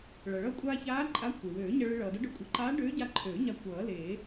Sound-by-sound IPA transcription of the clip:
ɭ ʌ˩ ɭ ʌː˧ kʷʼ aː˧ ç aː˧˥ ǃʼ a˧˥ kʷʰ e˩ w øː˨˩˦ ɲ ʌ˧ ɭ ɨ˧ ɭ ʌː˩ d ʌ˧˥ ɖ ø˧ kʷʼ ɨ˨˩˦ ǃ aː˧˥ ɖ øː˧˥ ɟ a˧ ǃʰ øː˨˩˦ ɲ a˧ kʷ ʌː˨˩˦ l eː˨˩˦

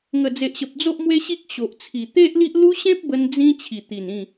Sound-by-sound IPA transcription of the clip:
ŋ ə˨˩ d͡z e˨ ʔ ɕ ə˨ p̚ d͡z o˦ ʔ m w e˦ ɕ i˦ k̚ ɕ o˨ ʔ t͡sʰ i˨˩ t̪ e˦ ʔ l i˦ ʔ l u˦ ɕ ẽ˦ p̚ b ə˧ n d͡z ĩ˦ t͡ɕʰ i˨˩ t̪ i˨˩ n ĩ˥˧

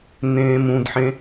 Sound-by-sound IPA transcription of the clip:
n ẽː m ũ d ħ ẽ

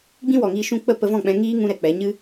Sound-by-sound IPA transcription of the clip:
ɡ͡b ĩ˦ w ɔ˨ ŋ iː˧ ʃ ũ˧ k͡p ə˦˨ p ə˧ v ɔ̃˦˨ k͡p ɛ̃˧ ŋ iː˦ ŋ ũ˦ ɾ ɛ˧ k͡p ɛ˨˦ ɲ ɨ˦

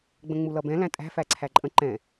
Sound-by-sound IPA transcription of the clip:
ɡ͡b ə̃ ŋ͡m u l ʌ b ɛ̃ l æ̃ tʼ æ̤ f æ ǀʰ æ ǃʼ ə̃ ǃ ɛ̃

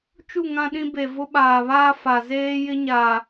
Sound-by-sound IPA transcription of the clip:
t͡ʃ u˦˨ ŋ ã˦ ɗ ĩ˦ b e˨ v ʊ˦ ɓ aː˨ β aː˦ f a˨ z eː˦ j ɪ˦ ɲ a˨

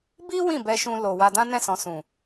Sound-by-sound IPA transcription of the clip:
b i˦ w ĩ˦˨ b ɛ˧ ʃ ũ˧ l o˨ w a˧ d ã˦ n ɛ̃˦˨ s ɔ̃˨ s ũ˨

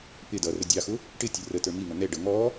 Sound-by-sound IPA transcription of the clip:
p ɪ d ʌ r ə dʲ ɑ x ʊ | ʈ ɪ tʲ ə r ə t ə˞ m i ŋ ʌ n̪ ɛ ɖ ʌ ŋ ɔ

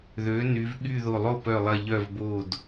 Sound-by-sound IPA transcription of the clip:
ð ø˩˧ n y˩˧ v ɠ y˧˩ ð o˧˩ lˠ o˥˩ p œ˧˩ lˠ ɐ˧˩ ʎ œ˧˩ v b o˧˩ d

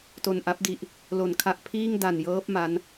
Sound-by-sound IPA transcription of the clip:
t o˨˩ n ʔ a˦˥ p̚ d i˨˩ ʔ | l o˩˦ n kʰ a˨˩ ʔ pʰ iː˥˩ ŋ d a˨˩ n j ɤː˦˥ p̚ m a˦˥ n

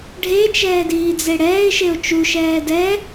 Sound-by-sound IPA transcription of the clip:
ɖʱ e t͡ʃ ɛː d iː d͡z e ɽ ɛː ɪ̯ ʃ e ʊ̯ t͡ʃ u ʃ ɛː d ɛ

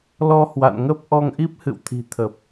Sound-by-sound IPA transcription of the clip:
l ɔ˧ h w a̰˧˨ n ŋ ə˦˥ p̚ ʔ ɔ˧ ŋ ʔ i˦˥ p̚ h ɨ̰˧˨ w t̪ʰ i̤˨˩ t̪ʰ ə˨˩ p̚

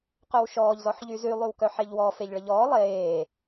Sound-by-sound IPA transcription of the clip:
q œ w ʃ ɔː ʎ z ɔ ħ ʎ y z y lˠ y w k œ ħ e ʎ w ɔ f e ʎ ɭ ə ʎ ɔː lˠ eː

